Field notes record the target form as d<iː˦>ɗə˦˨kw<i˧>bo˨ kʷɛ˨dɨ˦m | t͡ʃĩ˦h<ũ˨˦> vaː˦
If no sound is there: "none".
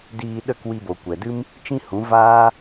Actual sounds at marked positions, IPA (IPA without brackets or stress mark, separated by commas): iː˧, i˧, ũ˨˦